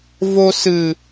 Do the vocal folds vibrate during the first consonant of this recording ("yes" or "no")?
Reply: yes